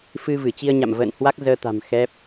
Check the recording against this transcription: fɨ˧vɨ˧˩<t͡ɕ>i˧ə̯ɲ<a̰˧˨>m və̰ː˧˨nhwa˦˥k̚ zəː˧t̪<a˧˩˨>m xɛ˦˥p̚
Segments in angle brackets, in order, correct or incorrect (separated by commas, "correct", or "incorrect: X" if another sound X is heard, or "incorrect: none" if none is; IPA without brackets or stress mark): correct, correct, incorrect: a̤˨˩